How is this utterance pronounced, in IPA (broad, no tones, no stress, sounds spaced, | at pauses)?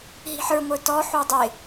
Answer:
ɦ i̤ ħ ə˞ ŋʷ ə˞ t ɔ ħ u dˤ ɪ